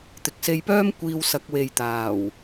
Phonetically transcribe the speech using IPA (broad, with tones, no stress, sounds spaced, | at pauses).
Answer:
t̪ ɪ˨ k̚ s e˧ j p œː˥ m kʷ iː˧ w s ɐ˨˥ k̚ w e˨ j t̪ aː˨˩ w